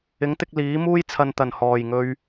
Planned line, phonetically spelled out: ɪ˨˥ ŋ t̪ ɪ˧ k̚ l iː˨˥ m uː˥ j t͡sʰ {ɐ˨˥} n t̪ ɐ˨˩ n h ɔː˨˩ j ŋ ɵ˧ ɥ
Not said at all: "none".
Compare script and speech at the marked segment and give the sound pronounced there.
ɐ˨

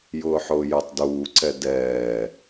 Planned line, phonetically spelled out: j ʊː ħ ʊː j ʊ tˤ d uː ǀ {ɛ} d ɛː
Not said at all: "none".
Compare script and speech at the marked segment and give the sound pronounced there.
ɛ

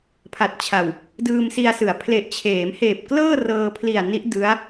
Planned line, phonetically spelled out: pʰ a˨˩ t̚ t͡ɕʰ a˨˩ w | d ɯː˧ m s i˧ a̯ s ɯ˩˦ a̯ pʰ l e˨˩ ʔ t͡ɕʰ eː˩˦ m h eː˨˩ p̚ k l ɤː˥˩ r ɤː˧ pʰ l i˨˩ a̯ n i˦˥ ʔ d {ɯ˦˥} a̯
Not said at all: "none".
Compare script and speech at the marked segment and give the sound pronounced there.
ɯ˦˥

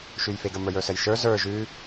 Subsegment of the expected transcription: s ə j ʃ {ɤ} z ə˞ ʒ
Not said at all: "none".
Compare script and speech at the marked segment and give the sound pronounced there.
ə˞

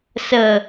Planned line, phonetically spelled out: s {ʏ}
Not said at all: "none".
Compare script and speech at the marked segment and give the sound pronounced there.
ə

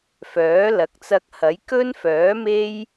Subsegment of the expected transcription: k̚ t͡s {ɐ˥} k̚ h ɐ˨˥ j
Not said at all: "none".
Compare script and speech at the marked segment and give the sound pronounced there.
ɐ˧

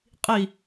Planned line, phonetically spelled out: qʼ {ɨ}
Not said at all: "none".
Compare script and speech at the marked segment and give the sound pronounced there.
i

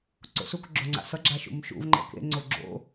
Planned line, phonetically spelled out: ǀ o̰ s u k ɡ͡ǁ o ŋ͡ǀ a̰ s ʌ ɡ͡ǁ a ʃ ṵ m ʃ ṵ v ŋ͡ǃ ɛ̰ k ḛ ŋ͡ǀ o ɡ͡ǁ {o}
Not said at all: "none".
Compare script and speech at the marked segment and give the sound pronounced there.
o̰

